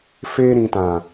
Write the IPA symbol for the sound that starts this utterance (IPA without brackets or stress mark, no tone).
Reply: f